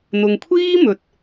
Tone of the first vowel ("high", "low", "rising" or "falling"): low